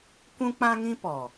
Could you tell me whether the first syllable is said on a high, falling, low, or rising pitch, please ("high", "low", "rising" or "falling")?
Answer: high